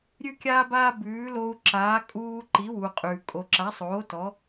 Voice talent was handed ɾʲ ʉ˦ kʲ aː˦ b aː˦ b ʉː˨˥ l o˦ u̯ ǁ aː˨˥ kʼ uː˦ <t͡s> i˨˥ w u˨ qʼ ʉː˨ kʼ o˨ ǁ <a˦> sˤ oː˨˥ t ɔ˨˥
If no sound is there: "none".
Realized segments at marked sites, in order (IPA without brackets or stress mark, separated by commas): ǃ, a˨˥